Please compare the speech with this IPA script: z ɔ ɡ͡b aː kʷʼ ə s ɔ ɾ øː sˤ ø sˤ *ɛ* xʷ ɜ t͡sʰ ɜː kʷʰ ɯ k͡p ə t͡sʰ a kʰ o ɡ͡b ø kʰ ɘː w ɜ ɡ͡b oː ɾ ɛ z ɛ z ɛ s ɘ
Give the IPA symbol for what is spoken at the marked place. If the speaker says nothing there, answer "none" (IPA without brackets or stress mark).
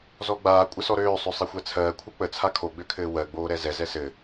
ɛ